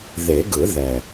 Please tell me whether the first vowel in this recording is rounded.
no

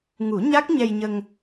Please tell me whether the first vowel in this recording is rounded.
yes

